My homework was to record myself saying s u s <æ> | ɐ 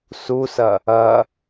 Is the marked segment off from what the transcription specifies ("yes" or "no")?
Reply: yes